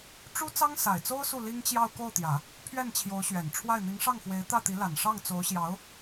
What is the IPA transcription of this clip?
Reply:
ʈ͡ʂu˥ t͡sɑ˥ŋsa˨˩ɪ̯t͡so˥ʊ̯ su˥˩li˥ŋ t͡ɕjɑ˥˧ʊ̯ ko˥˩ʊ̯t̪jä˨˩˦ | pʰɥɛ˥˩nt͡ɕʰjo˧˥ʊ̯ɕɥɛ˨˩nʈ͡ʂʰwa˥˩ɪ̯ n̪i˧˥ŋʂɑ˥˩ŋxwe˧˥ɪ̯ t̪ä˥˩t̪i˧˥la˨˩n ʂɑ˥˩ŋt͡so˧˥ʊ̯ɕjɑ˧˥ʊ̯

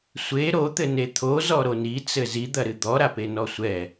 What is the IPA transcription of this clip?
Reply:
sʷe ɾot̪ɘne t̪ʰozɔɾo nit͡sɘ zid̪ɐɾɨ d̪ɔɾapenɔ sʷɛ

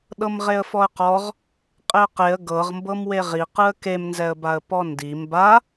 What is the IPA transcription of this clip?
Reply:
ɗɤmʁeə̯fɔə̯qɔʁ | qʼeə̯qeə̯ ɡɤʁmbɤmweʁ iqɯə̯ kemnzɛə̯baə̯ pɔndi mba

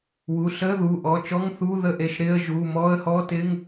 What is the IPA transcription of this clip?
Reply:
wu˩˧˩ɬəː˧˥˧ðuː˩˧˩ ʔɔ˩˧˩t͡ʃɔ˧˥˧ŋ θuː˧˥˧ðə˧˥˧ʔe˩˧˩ʃ ɾɪː˧˥˧ə̯ ʒuː˩˧˩mɔː˧˥˧ə̯hɔː˧˥˧tɪː˧˥˧ŋ

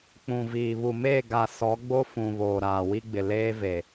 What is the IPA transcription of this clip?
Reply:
k͡pũ˨viː˨ βu˨meː˦˨ ɡa˨ sɔ˨˦ɡ͡bo˦ fũ˨ βoː˨ɾaː˨wi˦ɡ͡bɪ˨ leː˦ve˨

